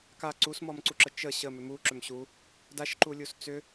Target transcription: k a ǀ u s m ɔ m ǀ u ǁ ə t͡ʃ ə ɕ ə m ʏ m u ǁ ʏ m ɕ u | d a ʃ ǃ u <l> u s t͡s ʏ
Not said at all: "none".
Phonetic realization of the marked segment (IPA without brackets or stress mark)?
lʲ